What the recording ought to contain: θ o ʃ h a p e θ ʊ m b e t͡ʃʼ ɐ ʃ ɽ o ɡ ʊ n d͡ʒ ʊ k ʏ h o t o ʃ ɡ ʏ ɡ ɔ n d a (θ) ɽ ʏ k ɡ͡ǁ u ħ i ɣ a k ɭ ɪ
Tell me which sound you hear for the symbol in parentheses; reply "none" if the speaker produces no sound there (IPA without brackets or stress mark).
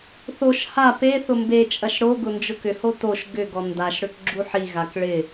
ʃ